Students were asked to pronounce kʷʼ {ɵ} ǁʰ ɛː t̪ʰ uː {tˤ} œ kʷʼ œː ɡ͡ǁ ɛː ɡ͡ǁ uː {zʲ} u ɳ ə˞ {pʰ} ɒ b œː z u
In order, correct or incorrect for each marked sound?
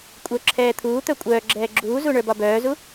incorrect: œ, incorrect: t̪, incorrect: z, incorrect: b

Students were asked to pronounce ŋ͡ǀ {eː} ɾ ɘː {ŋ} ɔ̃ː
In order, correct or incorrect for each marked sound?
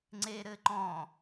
correct, incorrect: ǃ

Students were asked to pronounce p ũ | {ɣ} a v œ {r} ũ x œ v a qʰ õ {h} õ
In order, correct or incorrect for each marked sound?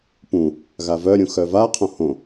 correct, incorrect: ɾʲ, correct

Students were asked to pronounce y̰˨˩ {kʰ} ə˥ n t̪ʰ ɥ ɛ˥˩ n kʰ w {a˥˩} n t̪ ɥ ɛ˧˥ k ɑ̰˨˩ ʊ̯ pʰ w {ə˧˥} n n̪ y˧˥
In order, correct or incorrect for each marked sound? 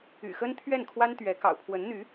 incorrect: x, incorrect: a˥, correct

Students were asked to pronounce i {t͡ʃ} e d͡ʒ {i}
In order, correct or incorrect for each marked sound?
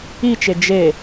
correct, incorrect: e

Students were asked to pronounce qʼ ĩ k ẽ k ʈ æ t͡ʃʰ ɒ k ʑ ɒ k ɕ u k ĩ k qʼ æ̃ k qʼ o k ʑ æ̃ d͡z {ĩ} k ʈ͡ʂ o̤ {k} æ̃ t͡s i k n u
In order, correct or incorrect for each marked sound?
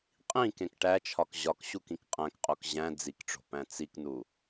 incorrect: i, incorrect: p

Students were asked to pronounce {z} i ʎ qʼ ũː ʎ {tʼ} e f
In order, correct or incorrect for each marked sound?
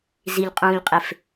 correct, incorrect: qʼ

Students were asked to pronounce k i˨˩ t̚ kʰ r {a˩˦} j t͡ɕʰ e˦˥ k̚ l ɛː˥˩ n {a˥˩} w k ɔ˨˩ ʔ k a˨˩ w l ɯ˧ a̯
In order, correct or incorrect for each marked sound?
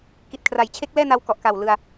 correct, incorrect: a˧

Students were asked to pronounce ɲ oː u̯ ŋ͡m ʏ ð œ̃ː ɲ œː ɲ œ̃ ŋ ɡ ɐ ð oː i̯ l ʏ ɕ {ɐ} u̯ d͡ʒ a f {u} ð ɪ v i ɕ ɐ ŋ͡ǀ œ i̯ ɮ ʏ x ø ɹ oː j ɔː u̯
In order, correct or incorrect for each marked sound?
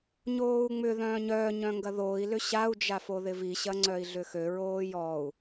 incorrect: a, incorrect: o

